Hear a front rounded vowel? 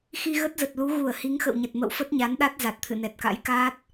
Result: no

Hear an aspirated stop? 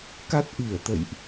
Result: no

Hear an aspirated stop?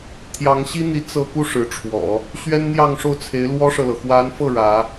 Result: yes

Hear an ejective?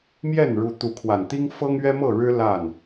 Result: no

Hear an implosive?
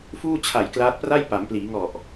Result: no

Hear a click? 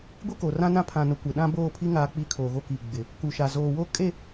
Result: no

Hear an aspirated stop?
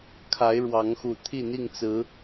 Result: yes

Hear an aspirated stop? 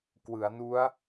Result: no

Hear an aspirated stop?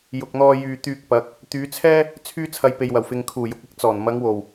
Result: yes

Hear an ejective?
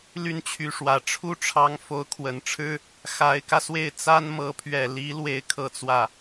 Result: no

